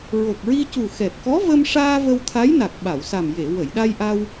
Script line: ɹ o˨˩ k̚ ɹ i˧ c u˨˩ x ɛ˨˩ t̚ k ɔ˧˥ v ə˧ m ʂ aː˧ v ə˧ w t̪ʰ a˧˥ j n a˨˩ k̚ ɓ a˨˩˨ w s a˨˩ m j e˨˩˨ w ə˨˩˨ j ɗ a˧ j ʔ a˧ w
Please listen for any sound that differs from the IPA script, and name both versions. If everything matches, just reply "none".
none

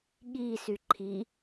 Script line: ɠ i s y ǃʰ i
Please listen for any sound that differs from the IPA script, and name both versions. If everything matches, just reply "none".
none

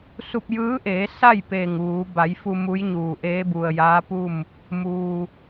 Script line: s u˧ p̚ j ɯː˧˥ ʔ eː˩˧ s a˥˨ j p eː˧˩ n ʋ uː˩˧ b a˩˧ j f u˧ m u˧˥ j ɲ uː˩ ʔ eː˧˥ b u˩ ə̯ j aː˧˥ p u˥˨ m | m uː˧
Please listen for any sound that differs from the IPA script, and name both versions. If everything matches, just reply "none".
n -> ŋ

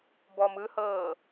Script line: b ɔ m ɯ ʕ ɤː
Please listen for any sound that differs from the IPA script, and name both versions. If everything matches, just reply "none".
ʕ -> h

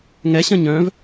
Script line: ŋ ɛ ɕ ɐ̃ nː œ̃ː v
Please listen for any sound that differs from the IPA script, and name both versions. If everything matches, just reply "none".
nː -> ɲ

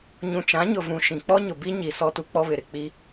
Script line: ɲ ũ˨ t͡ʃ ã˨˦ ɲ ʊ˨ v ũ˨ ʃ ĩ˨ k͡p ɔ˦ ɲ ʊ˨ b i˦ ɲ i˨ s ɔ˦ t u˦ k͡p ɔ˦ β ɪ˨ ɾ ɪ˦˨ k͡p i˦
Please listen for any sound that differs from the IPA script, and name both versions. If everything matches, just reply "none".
none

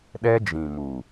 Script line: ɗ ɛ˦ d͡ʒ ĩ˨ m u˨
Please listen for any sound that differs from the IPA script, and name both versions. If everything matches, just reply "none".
none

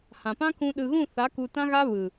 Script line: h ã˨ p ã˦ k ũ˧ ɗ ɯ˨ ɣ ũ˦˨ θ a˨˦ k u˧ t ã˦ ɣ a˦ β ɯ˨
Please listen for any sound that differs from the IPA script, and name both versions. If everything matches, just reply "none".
none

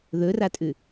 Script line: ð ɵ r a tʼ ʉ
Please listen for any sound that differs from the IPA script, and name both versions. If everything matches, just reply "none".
none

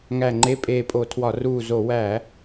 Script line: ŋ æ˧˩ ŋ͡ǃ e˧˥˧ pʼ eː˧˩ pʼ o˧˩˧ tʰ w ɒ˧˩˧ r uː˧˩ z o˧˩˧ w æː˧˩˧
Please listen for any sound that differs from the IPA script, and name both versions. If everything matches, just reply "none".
none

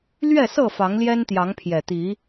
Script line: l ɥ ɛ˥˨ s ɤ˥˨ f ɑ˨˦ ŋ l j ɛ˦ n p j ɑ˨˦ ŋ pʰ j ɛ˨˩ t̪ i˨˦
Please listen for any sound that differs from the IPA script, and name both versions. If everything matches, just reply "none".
p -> t̪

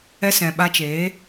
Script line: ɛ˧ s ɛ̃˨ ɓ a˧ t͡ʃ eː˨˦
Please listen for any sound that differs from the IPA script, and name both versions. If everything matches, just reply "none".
none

